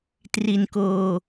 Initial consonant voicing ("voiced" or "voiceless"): voiceless